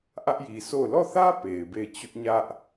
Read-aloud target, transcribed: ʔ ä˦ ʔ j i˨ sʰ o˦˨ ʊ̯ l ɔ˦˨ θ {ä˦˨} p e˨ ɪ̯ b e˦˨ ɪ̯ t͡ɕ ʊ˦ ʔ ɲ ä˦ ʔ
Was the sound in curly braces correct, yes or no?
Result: no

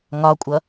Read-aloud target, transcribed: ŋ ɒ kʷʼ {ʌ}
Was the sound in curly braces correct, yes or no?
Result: yes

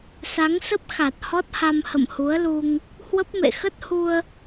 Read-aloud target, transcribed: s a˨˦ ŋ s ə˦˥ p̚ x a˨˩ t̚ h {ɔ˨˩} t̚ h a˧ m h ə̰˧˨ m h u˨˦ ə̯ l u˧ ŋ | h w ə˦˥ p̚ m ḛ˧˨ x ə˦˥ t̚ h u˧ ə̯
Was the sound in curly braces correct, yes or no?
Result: no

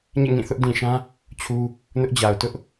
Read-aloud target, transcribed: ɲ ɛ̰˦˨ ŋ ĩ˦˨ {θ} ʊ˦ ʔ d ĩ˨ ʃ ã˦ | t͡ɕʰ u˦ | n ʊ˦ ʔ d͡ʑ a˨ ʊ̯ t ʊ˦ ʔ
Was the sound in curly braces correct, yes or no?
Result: yes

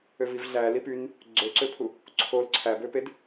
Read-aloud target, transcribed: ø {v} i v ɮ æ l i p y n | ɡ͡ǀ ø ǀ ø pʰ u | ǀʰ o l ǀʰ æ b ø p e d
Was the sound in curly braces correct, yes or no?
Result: yes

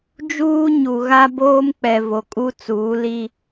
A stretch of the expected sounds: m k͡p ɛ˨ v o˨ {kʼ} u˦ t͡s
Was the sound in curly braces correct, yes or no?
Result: yes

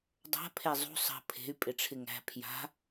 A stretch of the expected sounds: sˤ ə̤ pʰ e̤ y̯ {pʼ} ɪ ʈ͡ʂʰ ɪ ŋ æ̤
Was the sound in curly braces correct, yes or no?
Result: yes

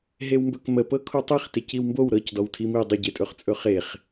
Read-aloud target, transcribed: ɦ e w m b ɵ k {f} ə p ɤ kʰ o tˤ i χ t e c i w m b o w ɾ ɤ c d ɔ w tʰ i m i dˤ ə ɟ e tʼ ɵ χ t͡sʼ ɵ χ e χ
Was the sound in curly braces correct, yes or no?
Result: no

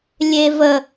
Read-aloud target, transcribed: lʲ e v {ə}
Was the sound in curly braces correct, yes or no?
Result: yes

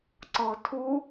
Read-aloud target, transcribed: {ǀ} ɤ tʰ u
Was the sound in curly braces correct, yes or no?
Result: yes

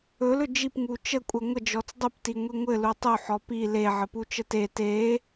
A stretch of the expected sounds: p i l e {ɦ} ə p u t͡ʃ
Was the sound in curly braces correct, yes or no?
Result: no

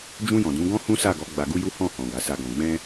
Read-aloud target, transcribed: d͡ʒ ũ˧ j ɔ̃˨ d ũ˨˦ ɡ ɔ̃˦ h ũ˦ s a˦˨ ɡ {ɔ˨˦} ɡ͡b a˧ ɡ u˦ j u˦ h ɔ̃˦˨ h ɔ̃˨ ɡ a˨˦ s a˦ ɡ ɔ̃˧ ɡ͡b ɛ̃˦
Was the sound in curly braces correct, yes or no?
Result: yes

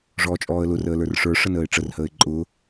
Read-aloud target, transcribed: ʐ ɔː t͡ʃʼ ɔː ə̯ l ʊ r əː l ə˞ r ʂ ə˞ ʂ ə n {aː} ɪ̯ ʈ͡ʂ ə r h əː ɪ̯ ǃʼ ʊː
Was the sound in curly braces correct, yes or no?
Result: no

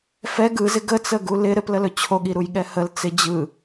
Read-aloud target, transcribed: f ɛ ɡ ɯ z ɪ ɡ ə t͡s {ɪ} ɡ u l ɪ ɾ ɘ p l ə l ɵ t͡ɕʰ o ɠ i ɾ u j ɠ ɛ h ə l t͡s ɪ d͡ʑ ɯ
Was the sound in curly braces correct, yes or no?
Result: no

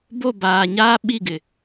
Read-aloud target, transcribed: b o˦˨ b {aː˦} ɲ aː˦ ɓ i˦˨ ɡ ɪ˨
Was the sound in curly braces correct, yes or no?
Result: no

